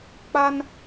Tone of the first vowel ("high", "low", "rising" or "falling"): high